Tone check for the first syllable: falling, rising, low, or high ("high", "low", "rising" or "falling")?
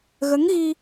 rising